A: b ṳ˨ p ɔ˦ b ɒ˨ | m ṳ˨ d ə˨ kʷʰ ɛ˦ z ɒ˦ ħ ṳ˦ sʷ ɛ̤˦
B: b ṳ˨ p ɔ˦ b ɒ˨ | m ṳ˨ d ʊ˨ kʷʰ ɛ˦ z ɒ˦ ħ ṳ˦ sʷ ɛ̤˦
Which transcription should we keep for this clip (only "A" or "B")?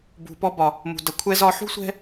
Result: A